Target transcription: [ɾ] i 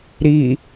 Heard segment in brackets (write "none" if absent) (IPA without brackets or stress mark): ɾ